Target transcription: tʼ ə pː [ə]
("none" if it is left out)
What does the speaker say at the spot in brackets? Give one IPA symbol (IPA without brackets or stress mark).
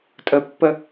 ə